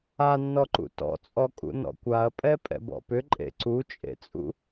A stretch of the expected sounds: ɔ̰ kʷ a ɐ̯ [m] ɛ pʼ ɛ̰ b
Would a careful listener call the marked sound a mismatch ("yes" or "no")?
yes